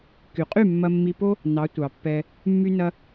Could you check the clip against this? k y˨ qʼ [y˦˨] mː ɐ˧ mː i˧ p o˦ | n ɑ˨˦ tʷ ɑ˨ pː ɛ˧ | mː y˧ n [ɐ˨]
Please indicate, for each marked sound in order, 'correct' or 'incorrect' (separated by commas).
correct, incorrect